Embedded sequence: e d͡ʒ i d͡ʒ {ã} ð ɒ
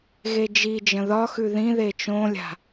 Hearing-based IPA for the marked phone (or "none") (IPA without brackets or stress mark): ə̃